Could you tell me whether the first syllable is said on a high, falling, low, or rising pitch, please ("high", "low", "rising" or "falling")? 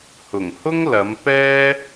low